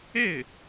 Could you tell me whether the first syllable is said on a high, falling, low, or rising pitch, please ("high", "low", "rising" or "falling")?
falling